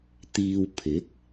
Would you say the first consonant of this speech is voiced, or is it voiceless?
voiceless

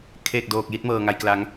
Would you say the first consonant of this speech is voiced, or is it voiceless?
voiceless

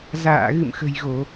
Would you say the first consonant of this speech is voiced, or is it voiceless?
voiced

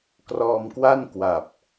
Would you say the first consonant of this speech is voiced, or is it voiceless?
voiceless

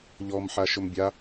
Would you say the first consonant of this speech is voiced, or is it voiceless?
voiced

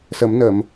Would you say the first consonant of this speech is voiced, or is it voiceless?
voiceless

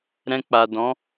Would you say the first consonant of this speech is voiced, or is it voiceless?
voiced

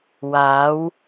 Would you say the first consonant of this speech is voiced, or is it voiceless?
voiced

